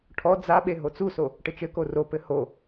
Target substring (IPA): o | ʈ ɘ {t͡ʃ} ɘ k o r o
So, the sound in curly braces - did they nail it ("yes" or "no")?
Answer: yes